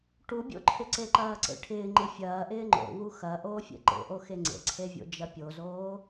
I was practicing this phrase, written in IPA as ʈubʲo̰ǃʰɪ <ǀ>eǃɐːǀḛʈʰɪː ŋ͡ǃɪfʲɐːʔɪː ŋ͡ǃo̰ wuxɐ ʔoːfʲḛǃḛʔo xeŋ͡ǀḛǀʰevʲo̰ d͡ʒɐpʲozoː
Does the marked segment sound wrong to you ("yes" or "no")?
no